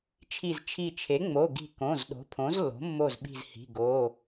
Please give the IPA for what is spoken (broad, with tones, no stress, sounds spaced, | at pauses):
t͡ʃʰ i˧˩ z t͡ʃʰ i˧˩ t͡ʃʰ e˩˥ ŋ͡m o˩˧˩ ɡ i̤˧˩ k õ˩˧˩ z ɗ o̤˩˥ pʰ õ˩˥ z lː o̤˩˥ mː o˧˩ z ɓ i̤˧˩ z h i̤˩˧˩ ɡ o˩˧˩